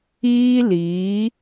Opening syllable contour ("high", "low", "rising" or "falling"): high